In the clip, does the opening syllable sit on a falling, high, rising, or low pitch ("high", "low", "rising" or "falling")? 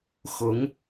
rising